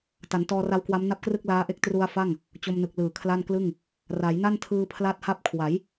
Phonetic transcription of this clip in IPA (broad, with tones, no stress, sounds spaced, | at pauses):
t a˩˦ n t ɔː˧ r a˦˥ w k w a˦˥ m n a˥˩ p̚ k r ɯ˥˩ k̚ l aː˦˥ ʔ e˦˥ k̚ t r u˧ a̯ f a˥˩ ŋ | t͡ɕ o˧ m n ɯ˨˩ k̚ l ɯː˨˩ kʰ l a˥˩ n k l ɯ˥˩ ŋ | r a˩˦ j n a˥˩ n tʰ ɯː˧ pʰ l a˥˩ t̚ h a˥˩ p̚ kʰ w a˩˦ j